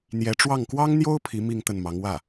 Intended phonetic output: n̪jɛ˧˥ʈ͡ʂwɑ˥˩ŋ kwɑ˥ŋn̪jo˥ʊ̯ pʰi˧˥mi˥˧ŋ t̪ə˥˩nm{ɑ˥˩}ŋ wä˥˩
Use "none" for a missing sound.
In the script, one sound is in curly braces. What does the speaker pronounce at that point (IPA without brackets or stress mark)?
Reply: ɑ˧˥